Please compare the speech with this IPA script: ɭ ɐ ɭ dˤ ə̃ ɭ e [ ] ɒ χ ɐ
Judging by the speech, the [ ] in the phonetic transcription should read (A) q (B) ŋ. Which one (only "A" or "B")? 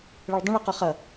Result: A